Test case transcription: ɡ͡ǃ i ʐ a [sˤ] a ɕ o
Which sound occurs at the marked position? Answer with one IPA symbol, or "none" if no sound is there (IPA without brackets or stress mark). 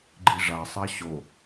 sˤ